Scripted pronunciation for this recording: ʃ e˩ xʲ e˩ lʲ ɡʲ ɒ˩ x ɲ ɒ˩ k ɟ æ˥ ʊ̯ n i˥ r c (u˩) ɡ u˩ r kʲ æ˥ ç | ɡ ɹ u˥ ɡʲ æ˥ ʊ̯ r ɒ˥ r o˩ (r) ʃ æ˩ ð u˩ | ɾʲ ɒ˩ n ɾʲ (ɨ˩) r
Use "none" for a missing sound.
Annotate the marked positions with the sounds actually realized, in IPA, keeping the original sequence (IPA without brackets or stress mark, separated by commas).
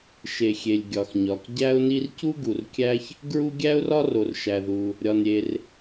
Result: u˥, r, e˩